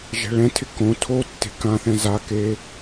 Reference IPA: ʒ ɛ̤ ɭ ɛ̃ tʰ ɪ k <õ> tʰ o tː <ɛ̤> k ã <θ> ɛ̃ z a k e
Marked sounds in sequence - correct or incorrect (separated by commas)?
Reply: correct, incorrect, correct